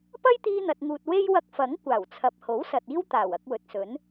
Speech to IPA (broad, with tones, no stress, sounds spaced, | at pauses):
p ɐ˥ j t̪ iː˧ n̪ ɐ˨ t̚ ŋ uː˨ t̚ w e˥ j w ɐ˧ k̚ f ɐ˨˥ ŋ kʷ aː˨˩ w t͡sʰ ɐ˨ p̚ h o˨˥ w s ɐ˨ t̚ iː˥ w t̪ aː˨˩ w ɐ˧ k̚ w ɵ˨ t̚ s ɵ˨˥ n